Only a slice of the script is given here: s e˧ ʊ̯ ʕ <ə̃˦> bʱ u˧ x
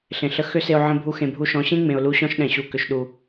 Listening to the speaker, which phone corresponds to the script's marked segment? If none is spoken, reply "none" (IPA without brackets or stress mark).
ə̃˧